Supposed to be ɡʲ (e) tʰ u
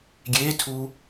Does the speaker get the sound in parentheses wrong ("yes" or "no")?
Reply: no